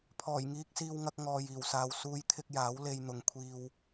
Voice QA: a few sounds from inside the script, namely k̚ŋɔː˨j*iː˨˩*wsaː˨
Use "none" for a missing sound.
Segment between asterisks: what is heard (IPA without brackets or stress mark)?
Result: iː˨˩